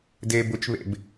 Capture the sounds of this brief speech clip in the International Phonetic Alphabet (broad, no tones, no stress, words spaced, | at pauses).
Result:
de bʊt͡ʃβḛb